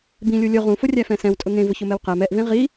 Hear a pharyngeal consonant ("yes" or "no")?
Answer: no